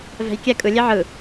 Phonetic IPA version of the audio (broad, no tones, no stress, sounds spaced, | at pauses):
v ɛ̤ j kʲ ɛ kʼ ɯ lʲ e ʕ ɯ